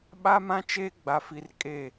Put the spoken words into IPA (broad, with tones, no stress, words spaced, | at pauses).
ɓa˦mã˦t͡ʃeː˦ ɡ͡ba˨fi˨r kʼe˦˨